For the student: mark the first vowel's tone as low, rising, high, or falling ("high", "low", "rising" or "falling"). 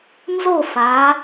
falling